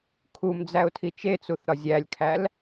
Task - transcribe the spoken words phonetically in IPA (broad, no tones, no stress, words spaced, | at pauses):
kʰum d͡zæʊ̯tʰit͡ʃet͡suθ ɾɒzʲælʲkʰæl